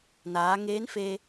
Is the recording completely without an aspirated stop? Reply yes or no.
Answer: yes